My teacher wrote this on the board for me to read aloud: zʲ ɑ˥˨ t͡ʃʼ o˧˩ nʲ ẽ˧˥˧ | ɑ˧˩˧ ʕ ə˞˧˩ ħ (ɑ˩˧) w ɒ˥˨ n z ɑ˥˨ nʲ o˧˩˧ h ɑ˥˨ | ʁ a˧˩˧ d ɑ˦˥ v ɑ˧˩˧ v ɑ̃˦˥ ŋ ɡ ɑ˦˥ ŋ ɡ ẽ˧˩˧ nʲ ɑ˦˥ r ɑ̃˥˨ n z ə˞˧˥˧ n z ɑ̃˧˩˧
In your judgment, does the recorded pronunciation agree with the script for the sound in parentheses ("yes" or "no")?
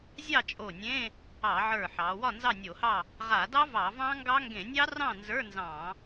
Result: yes